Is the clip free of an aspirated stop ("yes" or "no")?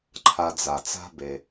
no